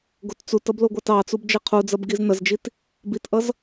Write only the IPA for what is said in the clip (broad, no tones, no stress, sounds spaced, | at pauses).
ɡ o t t͡s u t ʌ b l o ɡʷ ɑ t ɑ t͡s u b d͡ʒ ɛ qʰ u d͡z ɐ b ɡ i z n ɐ z d͡ʒ i t | b i t ʔ ʌ z